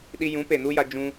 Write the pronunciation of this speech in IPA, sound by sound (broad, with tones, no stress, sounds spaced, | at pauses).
ɗ i˧ j ũ˨˦ p e˨ n u˦ j a˧ d͡ʒ ũ˧